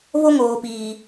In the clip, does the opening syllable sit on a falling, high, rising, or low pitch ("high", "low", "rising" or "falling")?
high